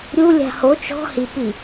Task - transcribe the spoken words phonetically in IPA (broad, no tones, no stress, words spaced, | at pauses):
ɾʲulʲa̤ ho t͡ʃɔ̤ hi pi